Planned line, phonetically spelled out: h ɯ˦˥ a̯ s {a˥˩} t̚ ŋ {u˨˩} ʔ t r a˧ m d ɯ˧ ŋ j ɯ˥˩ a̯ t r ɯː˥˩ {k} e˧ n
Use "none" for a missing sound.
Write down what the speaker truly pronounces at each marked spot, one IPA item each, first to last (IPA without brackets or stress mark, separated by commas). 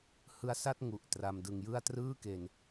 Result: a˥˩, u˨˩, k